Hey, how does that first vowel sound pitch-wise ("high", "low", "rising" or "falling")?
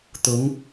rising